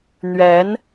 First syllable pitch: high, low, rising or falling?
rising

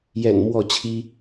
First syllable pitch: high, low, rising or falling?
low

